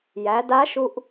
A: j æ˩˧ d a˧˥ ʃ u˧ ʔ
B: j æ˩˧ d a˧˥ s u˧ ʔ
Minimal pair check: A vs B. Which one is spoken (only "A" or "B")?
A